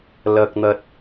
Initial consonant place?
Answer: alveolar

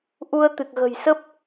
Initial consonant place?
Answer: glottal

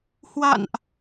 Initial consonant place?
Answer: glottal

